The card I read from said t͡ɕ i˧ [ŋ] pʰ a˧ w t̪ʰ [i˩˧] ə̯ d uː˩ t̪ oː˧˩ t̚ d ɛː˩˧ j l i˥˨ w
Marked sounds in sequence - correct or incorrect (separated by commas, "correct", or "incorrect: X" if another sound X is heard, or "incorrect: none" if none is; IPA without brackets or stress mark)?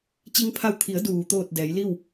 correct, correct